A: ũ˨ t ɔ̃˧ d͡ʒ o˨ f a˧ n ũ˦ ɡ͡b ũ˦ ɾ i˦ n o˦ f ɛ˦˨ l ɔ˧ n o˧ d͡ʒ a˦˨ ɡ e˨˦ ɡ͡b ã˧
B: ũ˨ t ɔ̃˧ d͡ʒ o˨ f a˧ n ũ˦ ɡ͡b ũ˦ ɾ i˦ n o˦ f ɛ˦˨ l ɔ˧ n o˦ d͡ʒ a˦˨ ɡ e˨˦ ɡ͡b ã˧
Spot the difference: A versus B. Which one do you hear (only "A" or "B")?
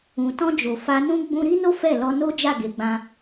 B